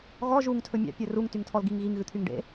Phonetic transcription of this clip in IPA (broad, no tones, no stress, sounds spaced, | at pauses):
ɣ ɔ ʒ u ŋ tʰ ɵ mʲ ɑ̰ pʲ ɵ r u ŋ t y ŋ tʰ ɔ l ɡ i ŋ ɣ i ŋ ɣ ʉ t̪ʰ y ŋ ɖ ḛ